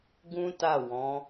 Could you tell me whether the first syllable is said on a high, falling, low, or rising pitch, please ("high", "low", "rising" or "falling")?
high